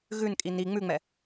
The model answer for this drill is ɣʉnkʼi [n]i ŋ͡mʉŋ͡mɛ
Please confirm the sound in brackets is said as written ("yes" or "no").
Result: yes